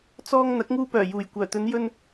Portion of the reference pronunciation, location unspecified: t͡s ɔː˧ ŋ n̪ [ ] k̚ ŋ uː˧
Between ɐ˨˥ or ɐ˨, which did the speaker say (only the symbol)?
ɐ˨˥